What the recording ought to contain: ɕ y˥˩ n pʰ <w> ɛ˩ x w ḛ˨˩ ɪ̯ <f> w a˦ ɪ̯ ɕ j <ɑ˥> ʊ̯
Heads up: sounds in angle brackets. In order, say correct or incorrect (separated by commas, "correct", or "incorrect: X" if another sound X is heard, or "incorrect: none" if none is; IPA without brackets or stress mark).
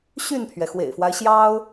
incorrect: ɥ, correct, correct